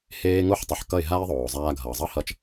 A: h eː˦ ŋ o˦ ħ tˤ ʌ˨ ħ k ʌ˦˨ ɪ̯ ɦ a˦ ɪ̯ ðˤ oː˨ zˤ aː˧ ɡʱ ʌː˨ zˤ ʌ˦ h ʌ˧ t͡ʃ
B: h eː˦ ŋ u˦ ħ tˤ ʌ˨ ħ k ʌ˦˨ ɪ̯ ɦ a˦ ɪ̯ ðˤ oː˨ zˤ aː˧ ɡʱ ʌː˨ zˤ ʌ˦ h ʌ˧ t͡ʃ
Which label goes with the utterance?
A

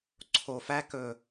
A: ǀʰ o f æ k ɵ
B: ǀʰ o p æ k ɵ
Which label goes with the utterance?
A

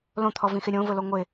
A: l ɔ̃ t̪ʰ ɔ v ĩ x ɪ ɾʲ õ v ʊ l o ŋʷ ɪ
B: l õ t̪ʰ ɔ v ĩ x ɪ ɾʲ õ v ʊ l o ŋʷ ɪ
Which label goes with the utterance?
B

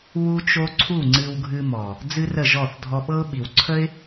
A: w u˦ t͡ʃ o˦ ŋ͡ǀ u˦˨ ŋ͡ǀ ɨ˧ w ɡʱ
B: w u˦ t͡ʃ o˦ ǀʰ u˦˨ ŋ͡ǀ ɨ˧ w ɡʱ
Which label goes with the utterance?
B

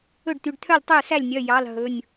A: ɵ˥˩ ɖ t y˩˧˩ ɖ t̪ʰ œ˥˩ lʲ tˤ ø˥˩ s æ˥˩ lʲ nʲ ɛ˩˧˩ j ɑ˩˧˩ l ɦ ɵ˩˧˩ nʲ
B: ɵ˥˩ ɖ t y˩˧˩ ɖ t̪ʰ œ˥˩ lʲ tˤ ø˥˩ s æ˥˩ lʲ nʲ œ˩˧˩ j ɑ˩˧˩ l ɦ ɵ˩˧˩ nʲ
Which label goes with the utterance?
B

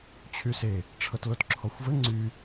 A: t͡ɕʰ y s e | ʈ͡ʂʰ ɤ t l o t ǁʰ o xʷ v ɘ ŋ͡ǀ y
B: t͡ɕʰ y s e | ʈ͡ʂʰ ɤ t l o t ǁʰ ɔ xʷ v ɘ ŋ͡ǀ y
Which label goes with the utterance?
B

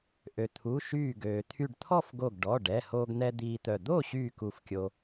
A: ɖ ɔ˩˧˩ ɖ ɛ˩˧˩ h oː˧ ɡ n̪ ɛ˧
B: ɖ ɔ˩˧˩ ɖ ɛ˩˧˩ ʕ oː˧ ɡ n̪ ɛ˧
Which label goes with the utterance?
A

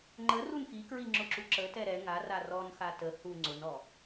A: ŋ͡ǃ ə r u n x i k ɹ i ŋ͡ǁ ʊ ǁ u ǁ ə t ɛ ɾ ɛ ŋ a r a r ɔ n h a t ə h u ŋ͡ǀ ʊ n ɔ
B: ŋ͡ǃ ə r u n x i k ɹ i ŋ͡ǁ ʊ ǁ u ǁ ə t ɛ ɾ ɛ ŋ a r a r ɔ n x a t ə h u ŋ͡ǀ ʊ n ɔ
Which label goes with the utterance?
B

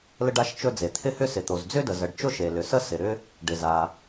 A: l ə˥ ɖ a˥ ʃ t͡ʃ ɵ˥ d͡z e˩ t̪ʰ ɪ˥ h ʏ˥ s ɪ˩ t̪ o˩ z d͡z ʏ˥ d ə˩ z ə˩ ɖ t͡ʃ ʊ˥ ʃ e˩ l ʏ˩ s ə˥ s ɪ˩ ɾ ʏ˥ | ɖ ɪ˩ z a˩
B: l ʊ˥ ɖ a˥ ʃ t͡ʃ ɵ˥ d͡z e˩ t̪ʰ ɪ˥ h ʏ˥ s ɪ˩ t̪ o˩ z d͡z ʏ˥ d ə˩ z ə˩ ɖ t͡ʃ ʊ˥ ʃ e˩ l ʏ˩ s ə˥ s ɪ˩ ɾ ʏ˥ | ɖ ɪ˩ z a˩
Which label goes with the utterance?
A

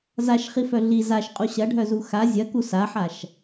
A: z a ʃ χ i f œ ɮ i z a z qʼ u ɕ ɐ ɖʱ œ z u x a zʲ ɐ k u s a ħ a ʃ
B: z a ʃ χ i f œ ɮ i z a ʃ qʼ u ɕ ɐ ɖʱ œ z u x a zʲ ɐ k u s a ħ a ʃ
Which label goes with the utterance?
B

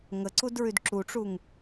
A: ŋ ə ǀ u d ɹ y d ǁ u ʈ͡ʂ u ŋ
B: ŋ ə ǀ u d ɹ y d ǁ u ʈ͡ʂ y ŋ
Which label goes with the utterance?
A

